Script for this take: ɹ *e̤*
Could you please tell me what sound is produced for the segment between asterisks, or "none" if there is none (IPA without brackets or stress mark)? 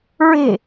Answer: e̤